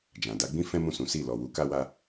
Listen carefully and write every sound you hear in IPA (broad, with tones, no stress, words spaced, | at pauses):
d͡ʒã˨da˨˦ɡ͡bĩ˦ fɛ̃˦mũ˦˨sũ˨˦si˦˨ lɔ˨wu˨˦ ka˦wa˦